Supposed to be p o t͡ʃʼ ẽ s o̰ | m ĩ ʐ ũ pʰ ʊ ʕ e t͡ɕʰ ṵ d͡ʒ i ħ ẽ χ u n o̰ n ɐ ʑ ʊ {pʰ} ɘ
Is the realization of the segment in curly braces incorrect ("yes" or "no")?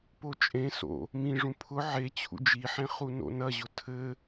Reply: yes